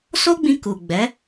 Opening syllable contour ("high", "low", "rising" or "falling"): high